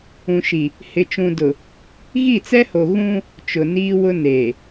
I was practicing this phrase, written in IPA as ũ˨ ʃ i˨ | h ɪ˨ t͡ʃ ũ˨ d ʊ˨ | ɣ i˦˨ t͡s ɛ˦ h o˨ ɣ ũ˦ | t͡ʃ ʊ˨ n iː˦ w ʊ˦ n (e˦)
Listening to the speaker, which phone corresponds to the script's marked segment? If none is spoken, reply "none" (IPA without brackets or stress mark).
e˨